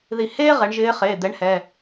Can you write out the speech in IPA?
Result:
ð i˧˩ h eː˥ ʁ ɛ˩˧ ɳ ʒ ɪː˧˥ χ e˩˧˩ d̪ ɛ˧˥ ɳ h ɛ˩˧˩

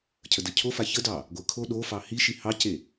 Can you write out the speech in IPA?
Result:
cʰ ə d ə cʰ o f a ç ə d ɑ | ɡʷ ə kʰ o ɗ o f ɑ h i ʃ i h ɑ c e

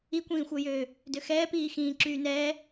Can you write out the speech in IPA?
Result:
i kʷ ĩː xʷ œ j øː | d ø x ɛː p iː x ĩː ǁ yː n ɛː

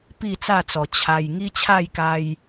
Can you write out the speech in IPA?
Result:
p i˥˧ t͡s a˥˧ t͡s ɔ˨˩ t͡ɕʰ a˧ j ŋ i˦ t͡ɕʰ a˥˧ j k a˧ j

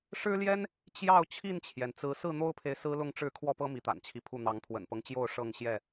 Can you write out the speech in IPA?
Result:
ʂ ɻ̩˦ l j ɛ˦ n | t͡ɕ j ɑ˥˨ ʊ̯ t͡ɕʰ i˥˨ n t͡ɕʰ j ɛ˩ n t͡s ɹ̩˨˦ s ɹ̩˥˨ n̪ o˦ ʊ̯ pʰ e˨ ɪ̯ s ɹ̩˦ l ʊ˥˨ ŋ ʈ͡ʂ ɻ̩˥˨ kʰ w ɔ˥˨ p ɤ˦ m i˨˦ t̪ a̰˨˩ n t͡ɕʰ i˦ pʰ u˥˨ n̪ ɑ˨˦ ŋ t̪ʰ w ə̰˨˩ n p ɤ˦ ŋ t͡ɕ j o˥˨ ʊ̯ ʂ ɤ˥˨ ŋ ɕ j ɛ˥˨

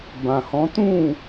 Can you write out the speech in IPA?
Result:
b ã˨ h ɔ̃˨˦ t ũ˦˨

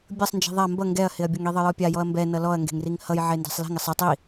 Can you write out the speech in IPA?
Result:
bʲ ʌ sˤ n d͡ʒ i̤ ðˤ a m b ʌ ŋ ɡ ɛ ɐ̯ h ɪ ɐ̯ bʲ ʌ ŋ i ðˤ ʌ j ɔ pʲ a j ɔ ɐ̯ m b ɛ n ʌ l ɔ ɐ̯ ŋ ɡ e̤ ŋ r i ŋ h ʌ j ʕ e n d ɛ̤ sˤ l i̤ ŋ ɪ sˤ ɪ tˤ i

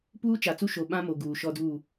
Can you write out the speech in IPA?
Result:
p uː˦ t͡ʃ a˨ t͡s u˦ ʃ o˨ ɓ ã˦ m o˨ ɡ uː˨ ʃ ɔ˦ d uː˦˨

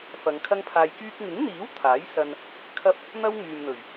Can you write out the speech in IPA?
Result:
f ɐ˨˧ ŋ kʰ ɐ˥ ŋ pʰ aː˧ j k yː˧ k̚ ŋ ɪ˨˥ ŋ n̪ iː˨˥ w t̪ʰ aː˨˥ j s ɐ˧ n | kʰ ɐ˥ p̚ | n̪ ɐ˥ w ŋ yː˨ m n̪ ɵ˨˩ ɥ

